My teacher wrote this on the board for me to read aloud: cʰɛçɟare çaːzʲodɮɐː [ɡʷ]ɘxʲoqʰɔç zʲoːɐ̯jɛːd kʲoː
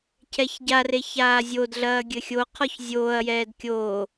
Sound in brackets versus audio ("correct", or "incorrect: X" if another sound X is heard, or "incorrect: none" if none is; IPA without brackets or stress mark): incorrect: ɡʲ